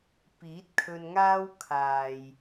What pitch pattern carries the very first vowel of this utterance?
rising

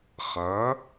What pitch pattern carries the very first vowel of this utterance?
rising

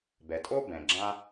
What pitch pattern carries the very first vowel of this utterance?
low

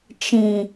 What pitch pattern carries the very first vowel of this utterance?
low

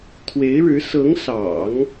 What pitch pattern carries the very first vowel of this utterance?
rising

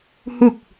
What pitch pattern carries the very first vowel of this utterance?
falling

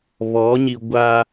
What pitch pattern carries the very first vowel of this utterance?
rising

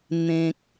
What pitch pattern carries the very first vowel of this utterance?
low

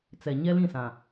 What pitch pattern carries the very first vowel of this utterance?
low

